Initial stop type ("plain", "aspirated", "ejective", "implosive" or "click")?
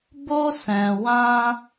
plain